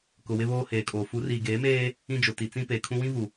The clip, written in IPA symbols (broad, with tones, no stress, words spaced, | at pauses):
kʊ˨wɪ˦βoː˦ heː˨kʼoː˨ fu˨˦riː˨ɡeː˨˦meː˦ | ĩ˦d͡ʒʊ˨ti˨ t͡sĩ˦ peː˨kʰũ˦ wĩ˦vu˨